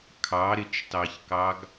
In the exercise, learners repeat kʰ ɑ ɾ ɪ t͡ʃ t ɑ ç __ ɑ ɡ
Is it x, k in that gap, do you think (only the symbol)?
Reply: k